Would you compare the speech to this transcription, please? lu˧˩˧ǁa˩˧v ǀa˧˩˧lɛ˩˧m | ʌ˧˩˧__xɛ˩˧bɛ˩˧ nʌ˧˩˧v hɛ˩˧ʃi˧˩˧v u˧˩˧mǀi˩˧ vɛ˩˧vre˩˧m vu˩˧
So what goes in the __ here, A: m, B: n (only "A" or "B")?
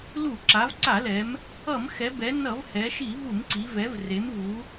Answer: A